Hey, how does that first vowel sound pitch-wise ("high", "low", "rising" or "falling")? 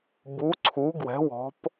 rising